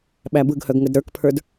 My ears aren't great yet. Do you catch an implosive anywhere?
yes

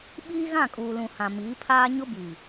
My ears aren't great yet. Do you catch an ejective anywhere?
yes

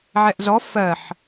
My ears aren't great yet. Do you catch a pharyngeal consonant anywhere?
yes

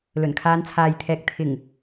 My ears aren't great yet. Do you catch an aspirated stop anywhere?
yes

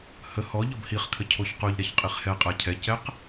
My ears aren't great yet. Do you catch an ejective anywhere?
yes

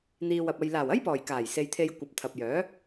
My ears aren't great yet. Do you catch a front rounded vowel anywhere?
yes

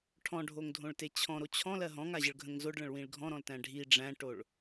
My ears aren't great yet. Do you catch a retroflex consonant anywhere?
yes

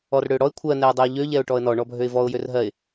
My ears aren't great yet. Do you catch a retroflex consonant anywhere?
yes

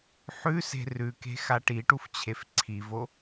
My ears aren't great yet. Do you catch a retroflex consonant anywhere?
yes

